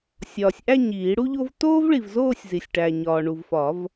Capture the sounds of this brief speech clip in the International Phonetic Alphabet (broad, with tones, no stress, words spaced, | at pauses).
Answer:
sʲɒː˨sʲ ʔæ˥˧ ɲiː˨˩˦ɽu˥ʎo˥v toː˥vɭi˨vzoː˥˧sʲ zi˨sʲʈæ˨ɲɒː˨ ɳu˨vfɒ˨˩˦v